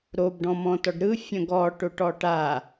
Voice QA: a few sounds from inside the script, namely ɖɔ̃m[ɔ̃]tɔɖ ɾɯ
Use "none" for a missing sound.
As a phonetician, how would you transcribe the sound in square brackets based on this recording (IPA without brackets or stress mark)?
ɔ̃